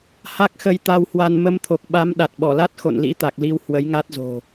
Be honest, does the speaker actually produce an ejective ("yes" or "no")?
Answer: no